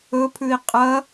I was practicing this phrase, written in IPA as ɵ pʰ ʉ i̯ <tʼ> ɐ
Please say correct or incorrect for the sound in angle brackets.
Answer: incorrect